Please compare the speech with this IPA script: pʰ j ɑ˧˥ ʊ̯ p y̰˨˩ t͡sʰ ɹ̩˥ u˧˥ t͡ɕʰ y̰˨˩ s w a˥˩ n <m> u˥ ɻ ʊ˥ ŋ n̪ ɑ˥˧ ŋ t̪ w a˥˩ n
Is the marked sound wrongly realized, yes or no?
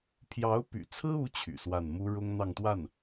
no